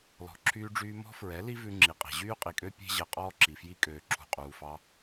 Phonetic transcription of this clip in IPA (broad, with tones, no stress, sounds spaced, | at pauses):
l ɔ̤˨ ǁʰ yː˧ ɖ͡ʐ yː˧ m ɔ̤˦ f ɹ ɛ˨˦ l i˦ v ʉ˧ ŋ͡ǁ i˨ qʼ e̤˨ ʑ yː˦ qʼ i˨ kʼ ø˦ pʲ e̤˦ ʑ ɛ˧ qʼ ɔː˦ ǁ i˨ f j i˦ kʼ øː˨ ǁʰ ṳ˨ qʼ uː˨ f ɑ˧